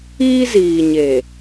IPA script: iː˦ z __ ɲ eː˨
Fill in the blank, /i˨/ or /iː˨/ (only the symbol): iː˨